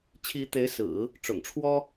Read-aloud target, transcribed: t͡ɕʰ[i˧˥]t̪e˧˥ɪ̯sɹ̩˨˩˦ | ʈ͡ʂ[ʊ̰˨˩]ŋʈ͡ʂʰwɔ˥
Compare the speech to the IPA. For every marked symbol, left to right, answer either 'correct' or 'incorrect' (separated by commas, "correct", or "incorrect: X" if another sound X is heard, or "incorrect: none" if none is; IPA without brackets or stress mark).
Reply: correct, correct